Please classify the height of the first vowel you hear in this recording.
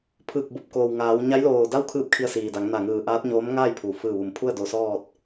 high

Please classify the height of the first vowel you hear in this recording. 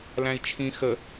low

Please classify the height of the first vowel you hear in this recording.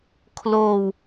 mid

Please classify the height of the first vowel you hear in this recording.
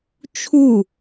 high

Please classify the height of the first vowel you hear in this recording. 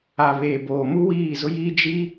low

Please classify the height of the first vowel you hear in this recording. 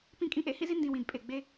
high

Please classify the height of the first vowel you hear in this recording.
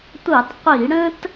low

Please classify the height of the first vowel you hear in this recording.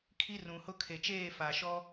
high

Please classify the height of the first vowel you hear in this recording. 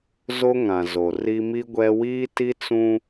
mid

